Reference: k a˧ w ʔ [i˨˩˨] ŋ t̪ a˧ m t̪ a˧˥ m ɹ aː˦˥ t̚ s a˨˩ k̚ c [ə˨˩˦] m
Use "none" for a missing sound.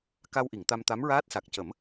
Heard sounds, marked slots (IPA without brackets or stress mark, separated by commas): i˨˩˨, ə˨˩˦